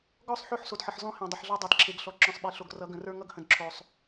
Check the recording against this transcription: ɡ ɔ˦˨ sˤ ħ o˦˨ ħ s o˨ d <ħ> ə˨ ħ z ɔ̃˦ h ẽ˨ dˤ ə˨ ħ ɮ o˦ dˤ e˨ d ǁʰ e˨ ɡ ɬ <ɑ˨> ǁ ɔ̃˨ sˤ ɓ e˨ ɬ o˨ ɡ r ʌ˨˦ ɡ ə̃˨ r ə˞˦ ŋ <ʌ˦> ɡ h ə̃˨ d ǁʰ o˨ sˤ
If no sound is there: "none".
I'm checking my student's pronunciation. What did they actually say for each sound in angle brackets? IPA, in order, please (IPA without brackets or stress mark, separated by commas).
ħ, ɔ˨, ʌ˦